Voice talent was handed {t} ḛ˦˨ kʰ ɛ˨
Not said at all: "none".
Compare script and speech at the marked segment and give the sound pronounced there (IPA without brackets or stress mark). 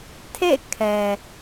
tʰ